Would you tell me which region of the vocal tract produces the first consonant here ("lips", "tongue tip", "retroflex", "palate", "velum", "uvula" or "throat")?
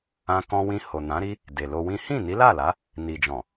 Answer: velum